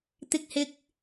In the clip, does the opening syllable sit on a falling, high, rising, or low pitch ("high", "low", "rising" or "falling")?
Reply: high